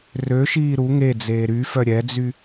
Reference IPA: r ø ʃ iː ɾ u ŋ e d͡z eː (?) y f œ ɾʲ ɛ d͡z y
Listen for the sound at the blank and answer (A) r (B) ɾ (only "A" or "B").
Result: B